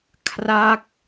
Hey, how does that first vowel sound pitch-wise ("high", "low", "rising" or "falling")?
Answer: falling